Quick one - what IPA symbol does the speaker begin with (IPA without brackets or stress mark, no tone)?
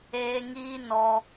eː